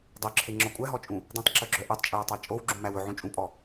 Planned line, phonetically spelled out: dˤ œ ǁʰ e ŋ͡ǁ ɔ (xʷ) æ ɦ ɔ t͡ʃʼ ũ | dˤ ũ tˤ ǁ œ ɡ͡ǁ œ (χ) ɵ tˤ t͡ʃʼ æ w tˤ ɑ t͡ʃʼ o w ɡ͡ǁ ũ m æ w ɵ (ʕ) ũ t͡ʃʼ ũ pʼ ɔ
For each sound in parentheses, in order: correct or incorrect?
incorrect: kʷʼ, incorrect: ʔ, correct

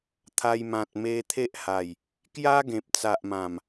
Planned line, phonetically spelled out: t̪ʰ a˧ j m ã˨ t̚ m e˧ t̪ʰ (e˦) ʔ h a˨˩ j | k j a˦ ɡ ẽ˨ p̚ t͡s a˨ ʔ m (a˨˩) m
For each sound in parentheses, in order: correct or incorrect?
correct, incorrect: ã˨˩

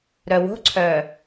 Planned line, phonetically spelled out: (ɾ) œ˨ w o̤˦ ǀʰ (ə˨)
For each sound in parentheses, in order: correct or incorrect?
correct, incorrect: œ˨

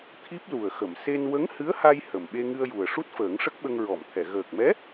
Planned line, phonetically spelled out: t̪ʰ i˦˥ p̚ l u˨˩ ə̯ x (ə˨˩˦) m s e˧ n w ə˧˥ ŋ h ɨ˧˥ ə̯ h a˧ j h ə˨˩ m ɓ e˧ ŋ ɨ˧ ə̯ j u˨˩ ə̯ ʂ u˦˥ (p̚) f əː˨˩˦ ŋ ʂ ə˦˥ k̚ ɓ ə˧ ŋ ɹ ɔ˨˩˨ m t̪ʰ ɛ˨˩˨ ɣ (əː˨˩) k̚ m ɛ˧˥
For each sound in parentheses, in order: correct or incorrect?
incorrect: ə˨˩˨, incorrect: t̚, correct

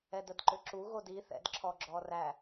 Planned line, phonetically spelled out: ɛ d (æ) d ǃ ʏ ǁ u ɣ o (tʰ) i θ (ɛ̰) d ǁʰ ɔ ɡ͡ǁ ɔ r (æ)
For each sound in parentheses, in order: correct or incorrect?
incorrect: ə, incorrect: d, correct, correct

